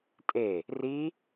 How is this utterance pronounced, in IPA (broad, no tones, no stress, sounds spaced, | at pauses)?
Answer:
tʼ e | r i